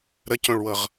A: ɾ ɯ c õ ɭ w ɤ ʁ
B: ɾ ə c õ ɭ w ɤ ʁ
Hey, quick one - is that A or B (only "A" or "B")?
B